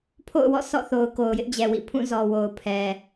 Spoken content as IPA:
pʰo̰˦˨ʊ̯wɔ̰˦˨ sɔ̰˦˨θo˨ʊ̯ ko˨ʊ̯jɪ˦ʔd͡ʑɛ˨wḭ˦˨ pʰũ˦˨zɔ˨wo˨ʊ̯ pʰɛ˨

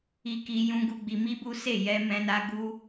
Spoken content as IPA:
i˧ki˧jũ˧ɡu˧ ɡ͡bi˧mi˦bu˦se˦˨ jɛ˧mɛ̃˧na˧ ɡu˦

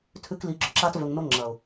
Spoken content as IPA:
tʰʉ˧kli˨˦ ɡ͡ǁɵ˨ǁa˧tvɵ˨ŋno˧ ŋ͡ǁɐ˨ʊ̯

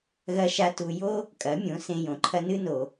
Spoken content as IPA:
ɣɐ˧ʃa˧ tu˧ jo˦ | kʼɐ˨˦mʲõ˨˦ sẽ˧jõ˨ǃʰɐ˦ nɨ˦no˨

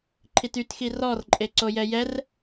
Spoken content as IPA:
ǃʰitytxi rɔrǃʼe ǀojɛjɛr

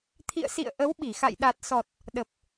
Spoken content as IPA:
t̪ʰḭ˧˨ə̯sḭ˧˨ə̯ ʔə˨˦w ɓi˧˩xa̰˧˨j ɗa˨˩t̚sɔ˨˩t̚ | ɗə˨˩p̚

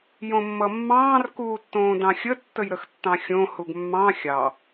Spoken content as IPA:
jõmːʌmːɑ̃ːr kuːtːõːdɑ̃xʲə tːəjɾəxtːɑ̃xʲõ huɡmːɑ̃ xʲɑ

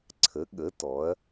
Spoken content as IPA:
ǀʰə˩˥ɠə˩˥ tɔ˩˥ɐ̯

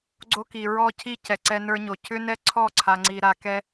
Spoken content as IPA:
ɡ͡ǀo˦ki˨ ɹɔ˦cʰi˦ cɛ˨ǀɛ˦nə˞˦ɲo˨ cʰʏ˦nɛ˦ ǀʰɔ˦˨ǀʰa˨ŋ͡ǀi˨ ɾa˨kɛ˦

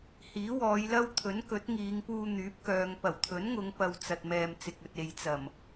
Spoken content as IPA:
hiː˨˥wɔː˨˧jlɐ˥w t̪ʰɵ˨˥nkɵ˨˥t̚ŋiː˨˧ŋpuː˧ n̪yː˨˥p̚kœː˨ŋ pɐ˨˩wt̪ʰɵ˨˥nŋʊ˨˧ŋ pɐ˧w t͡sɐ˨t̚mɛː˨m t͡sɪ˨k̚ɵ˨t̚ e˨jt͡sɐ˨˩m

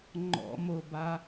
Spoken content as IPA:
ŋ͡ǃɔ̰moba

